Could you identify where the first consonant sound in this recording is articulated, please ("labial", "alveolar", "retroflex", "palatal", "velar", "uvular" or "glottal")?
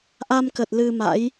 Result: glottal